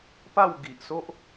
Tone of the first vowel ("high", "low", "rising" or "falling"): falling